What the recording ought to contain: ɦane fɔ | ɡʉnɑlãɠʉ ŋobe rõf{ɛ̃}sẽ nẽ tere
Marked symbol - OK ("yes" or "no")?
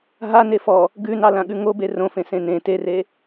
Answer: no